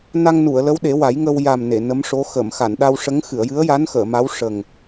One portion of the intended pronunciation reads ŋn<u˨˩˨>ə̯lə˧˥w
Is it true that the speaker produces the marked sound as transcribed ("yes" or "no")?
yes